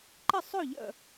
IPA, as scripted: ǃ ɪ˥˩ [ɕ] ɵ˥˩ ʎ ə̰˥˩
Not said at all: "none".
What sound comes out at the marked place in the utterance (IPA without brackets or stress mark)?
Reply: sˤ